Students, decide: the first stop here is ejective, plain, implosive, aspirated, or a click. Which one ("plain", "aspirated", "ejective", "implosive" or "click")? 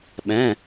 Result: implosive